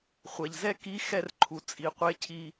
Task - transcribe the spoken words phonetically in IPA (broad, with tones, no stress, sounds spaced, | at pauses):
χʷ ɛ˩ ʎ z ɛ˥ k i˧˥ x ɛ˧ r ǃʰ u˩ t͡sʼ i˩˧ qʷ e˧˥ cʰ i˧